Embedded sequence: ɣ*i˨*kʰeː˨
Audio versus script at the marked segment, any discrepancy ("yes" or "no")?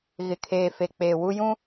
yes